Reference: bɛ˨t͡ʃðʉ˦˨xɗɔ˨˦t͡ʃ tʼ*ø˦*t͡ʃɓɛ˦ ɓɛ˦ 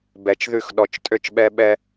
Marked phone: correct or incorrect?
correct